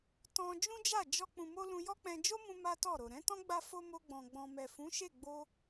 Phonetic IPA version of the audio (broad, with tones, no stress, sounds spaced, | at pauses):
t ɔ̃˧ d͡ʒ ũ˦ d͡ʒ a˦˨ d͡ʒ ɔ˧ k͡p ũ˨ m o˧ l ũ˧ j ɔ˦ k͡p ɛ̃˧ d͡ʒ o˦ m ũ˧ m a˦ t ɔ˦˨ ɾ o˨ ɾ ɛ̃˨˦ t ɔ̃˦ ɡ͡b a˧ f o˧ m o˧ ɡ͡b ɔ̃˨ ɡ͡b ɔ̃˨ m ɛ˨ f ũ˨˦ ʃ e˦˨ ɡ͡b o˧